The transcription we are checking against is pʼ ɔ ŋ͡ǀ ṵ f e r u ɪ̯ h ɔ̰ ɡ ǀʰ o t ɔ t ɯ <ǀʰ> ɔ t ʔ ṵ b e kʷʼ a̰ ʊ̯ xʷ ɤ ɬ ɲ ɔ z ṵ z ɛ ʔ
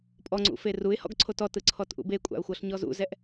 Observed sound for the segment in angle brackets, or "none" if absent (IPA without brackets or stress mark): ǀʰ